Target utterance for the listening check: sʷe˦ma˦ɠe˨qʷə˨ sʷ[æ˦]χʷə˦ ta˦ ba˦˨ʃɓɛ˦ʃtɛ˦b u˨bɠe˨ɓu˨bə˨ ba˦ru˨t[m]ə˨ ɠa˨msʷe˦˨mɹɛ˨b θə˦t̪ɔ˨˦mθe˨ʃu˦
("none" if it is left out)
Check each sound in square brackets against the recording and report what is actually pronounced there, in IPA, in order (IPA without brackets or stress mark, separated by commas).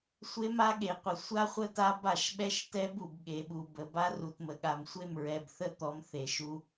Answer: a˦, m